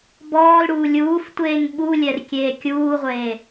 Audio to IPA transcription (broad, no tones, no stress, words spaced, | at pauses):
bɔːlɽuː lʲuːftʷeːŋ ɓulʲɛr kʲeːkʲuːʁʷeː